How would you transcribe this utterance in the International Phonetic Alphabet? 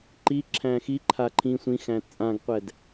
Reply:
ǃiǁʰæ̃ xiǃʰa ǃʰĩ sʷĩxæ̃ t͡sʼãɡqʷɛd

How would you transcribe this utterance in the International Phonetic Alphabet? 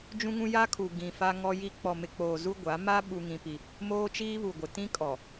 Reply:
d͡ʒũ˦ŋũ˦ ja˦kʰu˨ ɡĩ˨ fa˦ŋɔ˦ji˦ k͡pɔ˨mɪ˨k͡poː˨ zu˦ɡʷa˨˦ ma˦ ɓu˦ŋĩ˦pi˦ | moː˦t͡ʃiː˦βu˨ɡʷɪ˨ tĩ˦kʼɔ˨

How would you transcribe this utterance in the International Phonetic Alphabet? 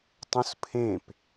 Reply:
tˤũspʰẽp

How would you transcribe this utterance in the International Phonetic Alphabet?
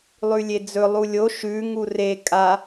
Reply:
lˠʉlʲed͡zɵ lˠulʲo ʃʉ ŋure kʼa

